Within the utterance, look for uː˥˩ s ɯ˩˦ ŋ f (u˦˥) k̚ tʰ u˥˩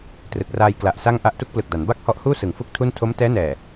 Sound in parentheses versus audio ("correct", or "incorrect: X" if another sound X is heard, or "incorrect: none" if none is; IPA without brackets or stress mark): correct